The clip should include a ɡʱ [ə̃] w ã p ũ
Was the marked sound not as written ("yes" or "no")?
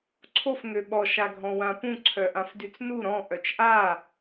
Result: yes